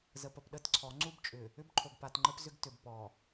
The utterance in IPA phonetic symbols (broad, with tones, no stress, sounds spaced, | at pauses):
z ə˨ p ə˨ p ɗ ə˦˨ t ǀʰ ɔ˨˦ ŋ͡ǀ u˦ b t͡ʃʼ ʏ˨ | ʏ˦ b ǃʰ o˨ ɡ p a˨ t ŋ͡ǃ ə˦ p z ʏ˦ ɡ t ʏ˨ b p ɔ˨